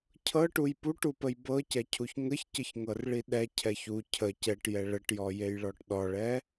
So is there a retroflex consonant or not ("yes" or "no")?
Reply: yes